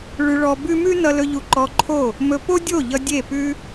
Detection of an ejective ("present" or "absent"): absent